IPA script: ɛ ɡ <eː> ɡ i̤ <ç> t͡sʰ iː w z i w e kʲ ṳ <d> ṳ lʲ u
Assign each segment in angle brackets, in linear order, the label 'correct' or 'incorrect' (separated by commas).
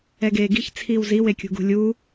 correct, correct, incorrect